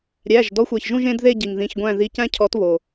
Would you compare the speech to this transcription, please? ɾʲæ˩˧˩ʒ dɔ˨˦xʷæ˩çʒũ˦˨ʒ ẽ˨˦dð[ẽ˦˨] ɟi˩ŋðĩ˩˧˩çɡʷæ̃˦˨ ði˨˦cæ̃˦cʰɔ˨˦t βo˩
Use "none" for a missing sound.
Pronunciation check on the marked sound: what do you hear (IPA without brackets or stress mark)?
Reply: e˦˨